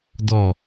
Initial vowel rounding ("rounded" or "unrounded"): rounded